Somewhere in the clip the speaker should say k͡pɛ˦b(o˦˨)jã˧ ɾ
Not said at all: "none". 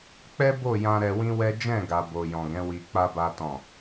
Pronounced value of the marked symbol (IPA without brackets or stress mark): o˦˨